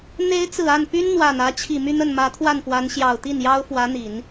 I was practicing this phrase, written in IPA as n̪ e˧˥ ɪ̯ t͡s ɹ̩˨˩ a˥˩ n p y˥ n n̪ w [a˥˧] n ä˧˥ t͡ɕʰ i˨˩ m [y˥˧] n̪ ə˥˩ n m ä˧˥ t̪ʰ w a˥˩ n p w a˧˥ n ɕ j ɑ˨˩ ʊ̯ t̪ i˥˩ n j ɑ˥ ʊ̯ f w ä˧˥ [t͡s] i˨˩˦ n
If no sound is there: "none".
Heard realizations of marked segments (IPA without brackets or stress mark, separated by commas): a˨˩, y˥˧, n̪